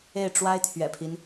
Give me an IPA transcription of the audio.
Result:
e˥˩ɪ̯ʈ͡ʂwa˥ɪ̯t̪ʰɥɛ̰˨˩pʰi˦n

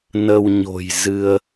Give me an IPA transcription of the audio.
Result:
nə˧wɲo̤˨˩j zɨ˧ə̯

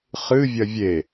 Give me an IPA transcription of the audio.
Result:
χɨ vʲɐvʲe

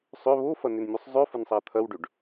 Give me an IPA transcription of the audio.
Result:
sˤʏ βofɐnʏnmʲosˤ zˤøfənsˤa t̪ʰɐwɖøɖ

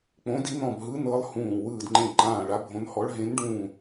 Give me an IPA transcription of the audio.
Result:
k͡põ˧˥di˧˥nɔ̃˦˨bɦɯ˧˥ nɤ˧˥lˠ hũː˦˨ wɯː˦˨dŋ͡ǃẽ˦˨ǃãː˦˨ ɭa˧˥bʱõ˧˥nhɔ˧˥ɭ ɦẽ˧˥nɖũː˦˨

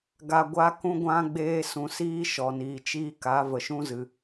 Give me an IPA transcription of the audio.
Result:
ɡa˨ɡʷa˧ kũ˧ɡʷã˧ɡ͡beː˧ sũ˨siː˦ʃɔ˨niː˨ t͡ʃiː˦ka˨˦ və˨ʃũ˦zɨ˨

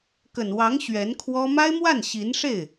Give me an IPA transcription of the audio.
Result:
kə˨˩nwɑ˧˥ŋ ɕɥɛ˧˥nkʰwɔ˥ ma˥ɪ̯mwa˥˩n ɕi˧˥nʂe˥˩ɪ̯

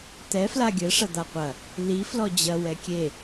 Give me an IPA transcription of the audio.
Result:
t̪ɛ flaɡʲɘ ʂɐd̪aqʷɐ | li flɔd͡ʑɐ wɛkʲe

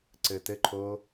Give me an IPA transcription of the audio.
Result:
ǀɘtɘǃʰo

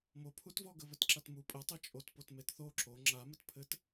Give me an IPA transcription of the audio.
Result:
mopʰutvɔ ɡəβɘtǁatmu pʼɘtˤe t͡ʃʼotpotmet θo ǁo ŋ͡ǁamɘt pʰɘt

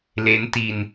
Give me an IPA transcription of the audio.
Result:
le˦˥nti˧n

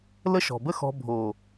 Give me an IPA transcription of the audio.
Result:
lə˦ʃɔ̤˨bə˦xɔ̤˧ bʱo˨

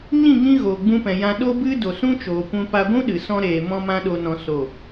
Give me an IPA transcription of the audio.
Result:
ɲĩ˦˨ŋĩ˧ ɣoː˨ɡ͡bũ˧pɛ̃˨jã˧ ɗo˧bɨ˧ do˨sũ˦t͡ʃoː˨kʷũ˧ pa˧ɡʷũ˦ɗɨ˨sɔ̃˧ ɾeː˨ mɔ̃˦mã˦ ɗo˧nɔ̃˧ so˦˨

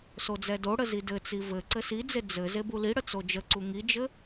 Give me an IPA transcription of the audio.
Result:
sod͡zɛdoɽə zidɘt͡si vɘ ǀɘsid͡ze d͡zɘ zebuliɽə t͡sod͡ʒəǀu ŋid͡ʒɘ

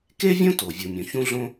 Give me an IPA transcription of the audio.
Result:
ke˥vʲõ˥ to˩ vʲu˩mʲõ˩ çũ˧ɮõ˧

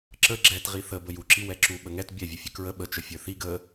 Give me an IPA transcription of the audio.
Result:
ǁə ɡ͡ǁɛtʁi θə bəjuǁi wɛǁu ɓəŋɛt bʲɛ vʲəfʲəkɹə ɓət͡ʃə fʲə˞θiɡ ə

